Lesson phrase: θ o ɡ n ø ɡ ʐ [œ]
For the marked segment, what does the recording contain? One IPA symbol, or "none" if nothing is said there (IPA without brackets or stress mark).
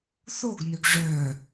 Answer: œ